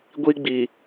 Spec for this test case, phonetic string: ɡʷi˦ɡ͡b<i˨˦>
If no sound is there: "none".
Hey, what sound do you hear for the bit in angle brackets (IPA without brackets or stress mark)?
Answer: i˨